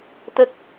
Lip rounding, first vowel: unrounded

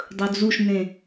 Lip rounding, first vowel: rounded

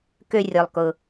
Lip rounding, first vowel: rounded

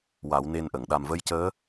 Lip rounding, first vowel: unrounded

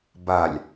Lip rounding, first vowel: unrounded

